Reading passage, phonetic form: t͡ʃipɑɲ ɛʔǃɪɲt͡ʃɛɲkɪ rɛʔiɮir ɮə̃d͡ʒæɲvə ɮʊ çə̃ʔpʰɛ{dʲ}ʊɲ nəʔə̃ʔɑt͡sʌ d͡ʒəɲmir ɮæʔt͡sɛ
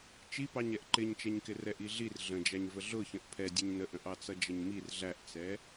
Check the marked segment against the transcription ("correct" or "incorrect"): correct